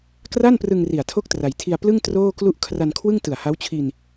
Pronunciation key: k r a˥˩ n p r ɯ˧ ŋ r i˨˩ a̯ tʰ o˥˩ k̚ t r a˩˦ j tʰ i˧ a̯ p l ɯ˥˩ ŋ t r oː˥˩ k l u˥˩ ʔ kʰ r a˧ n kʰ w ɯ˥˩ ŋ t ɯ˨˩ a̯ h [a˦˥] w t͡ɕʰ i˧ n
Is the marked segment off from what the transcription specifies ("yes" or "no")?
no